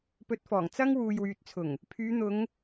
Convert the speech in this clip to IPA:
pɵ˧t̚fɔː˨˩ŋ t͡sɐ˥ŋ wuː˨jwyː˨t̚t͡sʰʊ˨˩ŋ | pʰyː˨˧n̪ʊ˨˧ŋ

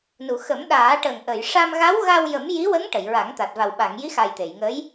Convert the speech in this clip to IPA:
nu˨˩˨xə˨˩˦m ɗaː˨˩˦ʈə˨˩ŋʔə˨˩˨j ʂa˧mɣa˧˥wɣa˧wjə˨˩˦m ji˧˥wə˧˥ŋ ʈə˨˩˨jɹa˨˩˦ŋt̪a˨˩t̚ va˨˩wɓa˨˩˨ŋji˧˥xa˨˩j t̪e˨˩˨jŋə˧˥j

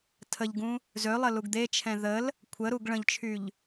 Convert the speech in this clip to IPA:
tʰəʎɡũ | zølˠə luɡd̪et͡ʃʰɛ̃ ðəl | kʷʰəɾuɡ ɭə̃ʎt͡ʃʰyʎ

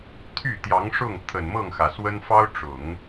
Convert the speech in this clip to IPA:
t̪ʰy˥˩t̪jɑ˧˥ŋ ʂʊ˥˩ŋ t̪ʰə˨˩nmɤ˥˩ŋxä˩swə˥n fɑ˥ʊ̯ʈ͡ʂʊ˨˩˦ŋ

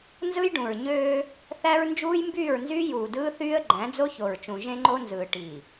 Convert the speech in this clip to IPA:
nzɯ˦jɖũ˨ɹ ɲøː˦ | θæ˦ɹ nd͡ʒuː˦jmbyː˦˨ɹnzyː˦ juː˨dɯː˦θyː˦ə̯ ɡ͡ǃæ̃˨˦d͡zo˦ço˨ɹt͡ʃũ˨ ʒẽ˦ ŋ͡ǃo˦nzɯː˨ ʈi˨

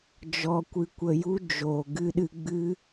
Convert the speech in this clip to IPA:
d͡ʒɔ˧kʷɨ˧ kʷə˧ju˦d͡ʒoː˨ ɡɨ˧ɗɨ˧ɡ͡bɨ˦

